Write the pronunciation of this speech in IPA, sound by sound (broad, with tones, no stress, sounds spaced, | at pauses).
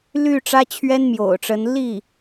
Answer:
l y˥˩ ʈ͡ʂ ä˥ t͡ɕʰ ɥ ɛ˥ n m j o̰˨˩ ʊ̯ ʈ͡ʂ ə˧˥ n l i˥˩